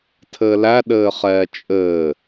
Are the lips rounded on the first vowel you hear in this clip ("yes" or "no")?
no